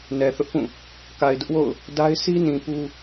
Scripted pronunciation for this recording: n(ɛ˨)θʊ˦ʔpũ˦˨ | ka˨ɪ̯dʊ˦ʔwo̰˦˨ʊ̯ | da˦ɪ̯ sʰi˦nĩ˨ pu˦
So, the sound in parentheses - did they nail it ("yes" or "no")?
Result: yes